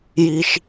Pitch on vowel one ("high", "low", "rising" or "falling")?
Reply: low